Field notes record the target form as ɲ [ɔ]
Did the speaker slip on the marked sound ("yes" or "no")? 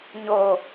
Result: yes